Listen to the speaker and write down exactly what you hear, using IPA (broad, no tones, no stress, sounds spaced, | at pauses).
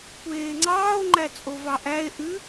kʷ eː ŋ͡ǀ ɑː o̯ ŋ͡ǃ æ t͡sʼ o v ɑ ʔ æ e̯ ʔ ʉ